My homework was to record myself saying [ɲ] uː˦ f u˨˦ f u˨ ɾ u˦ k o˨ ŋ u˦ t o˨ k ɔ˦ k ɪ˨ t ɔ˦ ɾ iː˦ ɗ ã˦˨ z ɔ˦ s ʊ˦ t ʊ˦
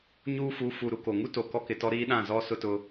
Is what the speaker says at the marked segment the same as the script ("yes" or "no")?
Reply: yes